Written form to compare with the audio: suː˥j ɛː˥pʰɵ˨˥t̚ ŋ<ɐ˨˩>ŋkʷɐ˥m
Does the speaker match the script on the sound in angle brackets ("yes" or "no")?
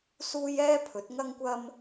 no